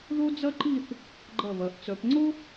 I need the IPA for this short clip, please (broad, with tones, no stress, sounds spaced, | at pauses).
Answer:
ð o˥ d͡z ɐ˥ ǃ i˥˧ θ | ɡ͡ǃ ɐ˧˩ β ɐ˩˧ ʔ t͡s œ˩˧ p ŋ͡ǀ o˥